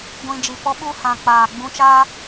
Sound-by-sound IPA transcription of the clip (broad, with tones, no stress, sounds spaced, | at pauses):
ɡʷ ĩ˨ d͡ʒ i˨ p ɔ˦ ɓ u˦ h ã˨ k͡p aː˨ ɡ͡b ũ˧ t͡ʃ aː˦